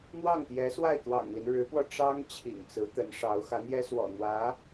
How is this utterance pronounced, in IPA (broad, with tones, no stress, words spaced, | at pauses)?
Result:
n̪wɑ˥˩ŋt̪jɛ˧˥ swa˥˩ɪ̯t̪wɑ̰˨˩ŋli˦n ɻɻ̩˧˥pwɔ˧ʈ͡ʂɑ˥ŋ t͡ɕʰḭ˨˩ŋt͡sɹ̩˧˥t̪ə˧˥nʂɑ˧˥ʊ̯ xä˧˥n̪jɛ˥swɔ̰˨˩ n̪wä˧˥